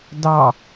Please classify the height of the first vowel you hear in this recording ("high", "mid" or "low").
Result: low